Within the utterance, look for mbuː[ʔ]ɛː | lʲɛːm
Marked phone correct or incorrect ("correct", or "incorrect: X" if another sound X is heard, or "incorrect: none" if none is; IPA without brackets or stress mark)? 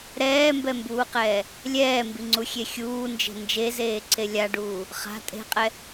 incorrect: q